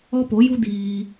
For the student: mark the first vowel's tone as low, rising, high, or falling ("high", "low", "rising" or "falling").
high